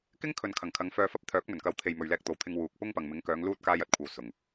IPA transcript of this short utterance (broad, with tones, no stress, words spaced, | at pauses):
kɪ˥ŋkʰɵ˨n kʰɐ˨˩ŋkʰɐ˨˧ŋfœː˧fɐ˥p̚ t̪ʰœː˨˥k̚mɵ˨˩nkɐ˨˧wt̪ʰe˨j mɵ˨ɥlɛː˧k̚t̪o˨wt̪ʰɪ˧ŋ wuː˨k̚ pʊ˥ŋ pɐ˨ŋmɪ˨˥ŋkœː˨˧ŋ luː˥t̚ kaː˥jɐ˥t̚kʷʰɐ˧w sʊ˨˩ŋ